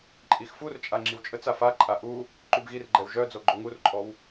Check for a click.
present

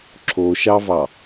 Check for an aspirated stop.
present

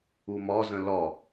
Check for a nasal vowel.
present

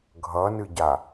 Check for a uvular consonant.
absent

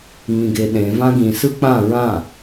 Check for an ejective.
absent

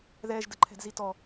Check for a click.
present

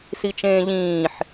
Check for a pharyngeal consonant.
present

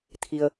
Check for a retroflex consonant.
absent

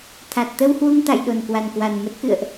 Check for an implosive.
present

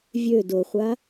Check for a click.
absent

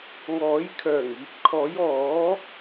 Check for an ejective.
absent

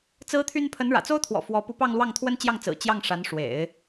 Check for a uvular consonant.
absent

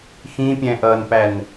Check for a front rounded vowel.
absent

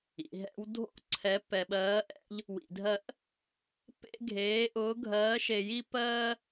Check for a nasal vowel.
absent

